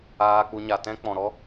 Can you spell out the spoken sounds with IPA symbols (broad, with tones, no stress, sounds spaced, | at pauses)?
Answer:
aː˧ k͡p u˧ ɲ a˨ t ɛ̃˧ k͡p ɔ̃˨ ɾ ɔ˦